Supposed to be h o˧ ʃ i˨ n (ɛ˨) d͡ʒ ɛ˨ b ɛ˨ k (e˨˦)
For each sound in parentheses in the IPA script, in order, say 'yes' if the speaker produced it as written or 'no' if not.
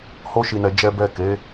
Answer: yes, yes

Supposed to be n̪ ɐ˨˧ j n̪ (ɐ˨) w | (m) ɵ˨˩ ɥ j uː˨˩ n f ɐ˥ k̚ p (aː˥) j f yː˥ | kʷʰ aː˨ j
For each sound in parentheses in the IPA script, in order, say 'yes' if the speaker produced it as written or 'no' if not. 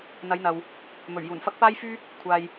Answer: yes, yes, yes

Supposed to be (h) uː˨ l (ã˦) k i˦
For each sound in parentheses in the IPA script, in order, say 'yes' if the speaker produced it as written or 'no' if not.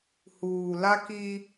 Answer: yes, no

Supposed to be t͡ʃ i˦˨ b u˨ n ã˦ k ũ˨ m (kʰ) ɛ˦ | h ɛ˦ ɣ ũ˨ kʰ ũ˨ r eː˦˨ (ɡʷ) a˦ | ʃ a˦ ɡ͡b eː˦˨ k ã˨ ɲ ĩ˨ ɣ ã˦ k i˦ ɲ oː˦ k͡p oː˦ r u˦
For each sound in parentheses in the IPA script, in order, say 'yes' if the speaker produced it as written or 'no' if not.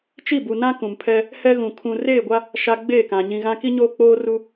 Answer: no, yes

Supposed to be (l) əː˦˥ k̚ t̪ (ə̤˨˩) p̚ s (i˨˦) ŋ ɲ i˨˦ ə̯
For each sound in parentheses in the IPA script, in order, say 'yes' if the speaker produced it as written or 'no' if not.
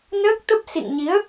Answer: no, no, no

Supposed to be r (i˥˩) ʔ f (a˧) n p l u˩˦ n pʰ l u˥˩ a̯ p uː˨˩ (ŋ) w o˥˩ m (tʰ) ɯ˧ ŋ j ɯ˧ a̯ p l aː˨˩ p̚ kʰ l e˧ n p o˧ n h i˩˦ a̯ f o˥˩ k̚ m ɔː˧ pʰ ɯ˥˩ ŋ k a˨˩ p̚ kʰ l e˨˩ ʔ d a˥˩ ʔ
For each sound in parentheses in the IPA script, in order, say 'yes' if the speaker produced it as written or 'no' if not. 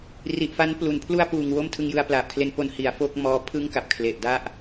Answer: no, no, yes, yes

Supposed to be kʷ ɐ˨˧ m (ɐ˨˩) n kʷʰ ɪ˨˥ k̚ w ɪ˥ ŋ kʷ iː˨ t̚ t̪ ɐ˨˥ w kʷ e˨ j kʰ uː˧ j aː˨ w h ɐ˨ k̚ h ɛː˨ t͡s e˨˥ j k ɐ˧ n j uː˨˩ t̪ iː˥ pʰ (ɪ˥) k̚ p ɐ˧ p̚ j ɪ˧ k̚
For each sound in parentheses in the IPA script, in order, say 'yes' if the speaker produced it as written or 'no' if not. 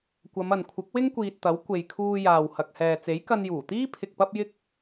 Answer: no, no

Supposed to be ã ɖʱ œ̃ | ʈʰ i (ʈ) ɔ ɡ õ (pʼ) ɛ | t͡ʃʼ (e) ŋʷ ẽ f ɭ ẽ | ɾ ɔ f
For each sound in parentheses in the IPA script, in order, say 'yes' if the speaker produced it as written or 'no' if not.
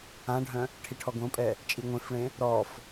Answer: no, yes, no

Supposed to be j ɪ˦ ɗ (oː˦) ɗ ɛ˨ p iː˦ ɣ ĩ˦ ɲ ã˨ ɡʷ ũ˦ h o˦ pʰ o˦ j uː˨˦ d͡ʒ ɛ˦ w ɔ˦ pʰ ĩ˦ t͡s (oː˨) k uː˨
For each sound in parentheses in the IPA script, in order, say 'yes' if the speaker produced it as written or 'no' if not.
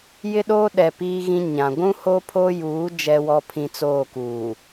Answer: yes, no

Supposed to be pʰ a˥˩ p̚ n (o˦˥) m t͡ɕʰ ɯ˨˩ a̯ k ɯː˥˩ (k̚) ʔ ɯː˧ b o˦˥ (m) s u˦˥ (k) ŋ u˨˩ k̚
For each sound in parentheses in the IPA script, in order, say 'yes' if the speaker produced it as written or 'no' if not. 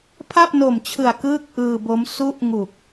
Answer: no, yes, yes, no

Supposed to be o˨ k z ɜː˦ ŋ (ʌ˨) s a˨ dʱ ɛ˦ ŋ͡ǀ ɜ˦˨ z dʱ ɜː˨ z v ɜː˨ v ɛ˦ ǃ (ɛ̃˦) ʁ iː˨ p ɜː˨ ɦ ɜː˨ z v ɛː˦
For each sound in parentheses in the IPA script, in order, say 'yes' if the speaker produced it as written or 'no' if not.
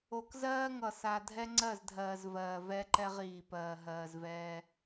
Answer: yes, no

